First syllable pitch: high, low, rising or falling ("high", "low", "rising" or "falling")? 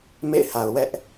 falling